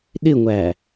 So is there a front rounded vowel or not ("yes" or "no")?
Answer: no